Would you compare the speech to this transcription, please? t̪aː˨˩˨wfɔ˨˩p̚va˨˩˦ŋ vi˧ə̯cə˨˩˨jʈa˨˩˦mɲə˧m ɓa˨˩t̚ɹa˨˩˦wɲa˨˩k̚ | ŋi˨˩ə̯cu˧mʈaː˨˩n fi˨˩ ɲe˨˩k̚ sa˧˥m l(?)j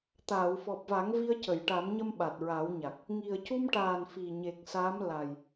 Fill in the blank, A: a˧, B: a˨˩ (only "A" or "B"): B